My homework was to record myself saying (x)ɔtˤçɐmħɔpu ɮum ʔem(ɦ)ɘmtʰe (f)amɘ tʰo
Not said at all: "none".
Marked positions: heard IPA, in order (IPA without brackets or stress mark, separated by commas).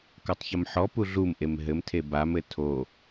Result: k, ɦ, b